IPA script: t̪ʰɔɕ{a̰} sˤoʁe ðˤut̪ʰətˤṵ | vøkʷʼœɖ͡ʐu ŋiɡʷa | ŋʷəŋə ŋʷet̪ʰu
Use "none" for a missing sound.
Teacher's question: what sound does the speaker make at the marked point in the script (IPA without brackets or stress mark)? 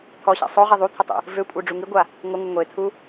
a̰